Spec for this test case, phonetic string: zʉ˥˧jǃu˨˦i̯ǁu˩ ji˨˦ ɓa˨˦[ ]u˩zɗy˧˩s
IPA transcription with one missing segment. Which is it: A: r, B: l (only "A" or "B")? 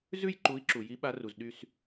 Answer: A